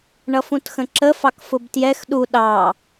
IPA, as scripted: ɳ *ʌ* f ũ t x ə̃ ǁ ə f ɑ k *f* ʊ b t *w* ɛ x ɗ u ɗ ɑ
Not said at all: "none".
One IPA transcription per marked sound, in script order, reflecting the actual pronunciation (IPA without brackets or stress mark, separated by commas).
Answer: ʌ, f, j